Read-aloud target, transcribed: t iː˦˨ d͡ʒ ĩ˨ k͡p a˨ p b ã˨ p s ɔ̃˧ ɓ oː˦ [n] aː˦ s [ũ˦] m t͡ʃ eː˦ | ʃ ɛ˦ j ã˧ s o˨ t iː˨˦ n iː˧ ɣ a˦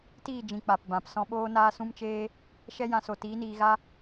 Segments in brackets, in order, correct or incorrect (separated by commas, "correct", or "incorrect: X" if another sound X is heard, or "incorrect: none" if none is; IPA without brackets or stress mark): correct, correct